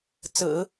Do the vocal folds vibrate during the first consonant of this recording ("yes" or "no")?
no